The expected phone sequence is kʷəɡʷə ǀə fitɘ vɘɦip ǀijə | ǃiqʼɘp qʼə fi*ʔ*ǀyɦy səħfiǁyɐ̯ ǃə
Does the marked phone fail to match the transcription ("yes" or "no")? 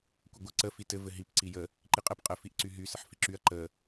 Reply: no